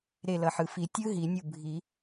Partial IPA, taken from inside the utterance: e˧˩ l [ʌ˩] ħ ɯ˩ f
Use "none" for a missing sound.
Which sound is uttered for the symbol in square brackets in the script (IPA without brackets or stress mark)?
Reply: ʌ˩